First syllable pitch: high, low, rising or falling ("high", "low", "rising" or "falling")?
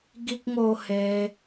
high